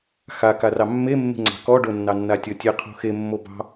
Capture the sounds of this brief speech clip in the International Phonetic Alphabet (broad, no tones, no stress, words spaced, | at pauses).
xakarɑ mːemːe̤ŋ͡ǀɑ̤ kɔɖonːɑnːa tʲɔtʲe qʰo̤xe mːobɑ̤